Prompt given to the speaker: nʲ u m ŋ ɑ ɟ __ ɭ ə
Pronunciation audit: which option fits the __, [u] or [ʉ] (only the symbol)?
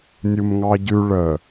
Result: ʉ